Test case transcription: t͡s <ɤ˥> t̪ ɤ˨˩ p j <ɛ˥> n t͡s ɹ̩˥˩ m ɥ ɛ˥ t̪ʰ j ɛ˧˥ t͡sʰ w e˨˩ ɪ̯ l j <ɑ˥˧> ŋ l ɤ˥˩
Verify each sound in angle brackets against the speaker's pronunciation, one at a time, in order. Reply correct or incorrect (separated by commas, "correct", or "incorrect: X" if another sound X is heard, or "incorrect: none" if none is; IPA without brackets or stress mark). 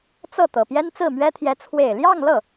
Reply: incorrect: ɤ˥˩, correct, correct